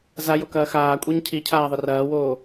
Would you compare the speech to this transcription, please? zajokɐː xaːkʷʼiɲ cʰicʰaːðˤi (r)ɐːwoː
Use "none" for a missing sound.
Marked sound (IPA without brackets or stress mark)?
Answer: r